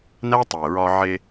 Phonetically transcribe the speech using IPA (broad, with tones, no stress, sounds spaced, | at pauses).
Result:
n æ˦ tˤ e˨ ɹ ɒ˧ ʕ e˧